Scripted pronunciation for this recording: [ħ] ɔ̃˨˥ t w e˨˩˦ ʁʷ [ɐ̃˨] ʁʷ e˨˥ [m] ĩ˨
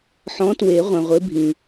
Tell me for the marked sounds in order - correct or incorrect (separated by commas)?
correct, incorrect, incorrect